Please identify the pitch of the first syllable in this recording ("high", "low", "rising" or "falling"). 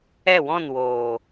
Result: falling